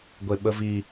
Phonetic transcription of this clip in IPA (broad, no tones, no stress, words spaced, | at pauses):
ɡʷeɓəvi